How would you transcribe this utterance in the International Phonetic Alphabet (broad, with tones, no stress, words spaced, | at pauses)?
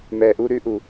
mɛ˨ʔu˧ ɾʉ˧ʔu˨